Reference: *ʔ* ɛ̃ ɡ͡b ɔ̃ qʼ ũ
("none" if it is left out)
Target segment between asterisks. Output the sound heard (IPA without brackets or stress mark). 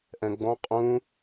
ʔ